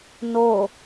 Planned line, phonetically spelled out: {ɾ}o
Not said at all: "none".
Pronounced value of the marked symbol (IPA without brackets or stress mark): n